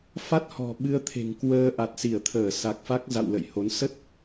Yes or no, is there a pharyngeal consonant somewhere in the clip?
no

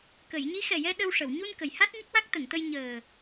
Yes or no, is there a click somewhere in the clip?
no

